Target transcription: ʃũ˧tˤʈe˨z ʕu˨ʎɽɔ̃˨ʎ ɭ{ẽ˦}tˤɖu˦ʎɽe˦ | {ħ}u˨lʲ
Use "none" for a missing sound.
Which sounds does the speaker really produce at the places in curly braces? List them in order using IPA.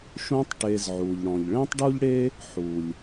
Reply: ẽ˦, ħ

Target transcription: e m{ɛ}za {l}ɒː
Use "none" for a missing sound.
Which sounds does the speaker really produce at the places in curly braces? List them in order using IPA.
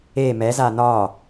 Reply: ɛ, n

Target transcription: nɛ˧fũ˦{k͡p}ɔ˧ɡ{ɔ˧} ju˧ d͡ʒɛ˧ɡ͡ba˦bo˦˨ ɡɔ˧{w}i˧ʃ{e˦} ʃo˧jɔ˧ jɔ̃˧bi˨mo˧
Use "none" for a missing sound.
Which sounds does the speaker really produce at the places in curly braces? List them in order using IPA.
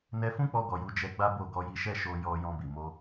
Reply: k͡p, ɔ˨, j, ɛ˦

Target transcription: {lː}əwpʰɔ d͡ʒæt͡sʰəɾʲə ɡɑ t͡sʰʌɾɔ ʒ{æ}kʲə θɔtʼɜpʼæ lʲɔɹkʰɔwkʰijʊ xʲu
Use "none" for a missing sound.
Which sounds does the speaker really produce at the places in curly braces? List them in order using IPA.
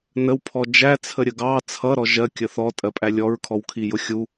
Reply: n, ɜ

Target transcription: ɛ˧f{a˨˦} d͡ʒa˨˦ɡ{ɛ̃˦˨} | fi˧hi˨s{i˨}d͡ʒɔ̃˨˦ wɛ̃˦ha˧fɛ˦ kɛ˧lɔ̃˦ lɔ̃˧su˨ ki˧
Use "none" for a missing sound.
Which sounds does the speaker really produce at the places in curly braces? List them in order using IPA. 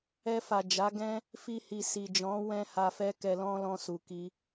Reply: a˨, ɛ̃˦, i˨

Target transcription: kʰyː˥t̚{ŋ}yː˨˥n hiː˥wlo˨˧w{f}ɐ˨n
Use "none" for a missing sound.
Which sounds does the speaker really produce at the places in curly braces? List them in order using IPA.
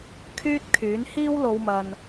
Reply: kʰ, m

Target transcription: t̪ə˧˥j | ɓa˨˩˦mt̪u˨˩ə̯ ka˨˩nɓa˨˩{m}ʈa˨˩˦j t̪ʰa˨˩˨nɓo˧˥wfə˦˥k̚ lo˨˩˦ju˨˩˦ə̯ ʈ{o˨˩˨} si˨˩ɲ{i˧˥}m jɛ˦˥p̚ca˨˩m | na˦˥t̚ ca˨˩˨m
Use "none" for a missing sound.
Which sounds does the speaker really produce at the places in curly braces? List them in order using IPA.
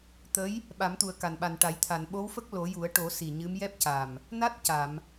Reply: n, o˨˩˦, ɨ˧˥

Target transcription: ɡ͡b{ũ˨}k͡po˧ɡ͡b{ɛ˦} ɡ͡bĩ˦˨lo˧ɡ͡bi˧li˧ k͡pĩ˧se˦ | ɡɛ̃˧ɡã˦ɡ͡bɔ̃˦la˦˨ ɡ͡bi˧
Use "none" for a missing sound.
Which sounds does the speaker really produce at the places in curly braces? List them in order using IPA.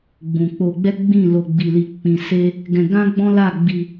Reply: ũ˨, ɛ˦

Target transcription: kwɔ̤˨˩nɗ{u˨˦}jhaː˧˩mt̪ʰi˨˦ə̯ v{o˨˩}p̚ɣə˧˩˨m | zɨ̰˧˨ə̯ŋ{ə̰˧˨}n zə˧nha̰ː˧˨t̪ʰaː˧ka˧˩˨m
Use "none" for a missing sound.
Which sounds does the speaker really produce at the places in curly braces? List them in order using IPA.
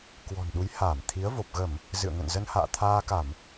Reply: u˨˦, o˨˩, ə̰˧˨

